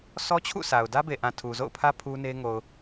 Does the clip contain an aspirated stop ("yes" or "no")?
yes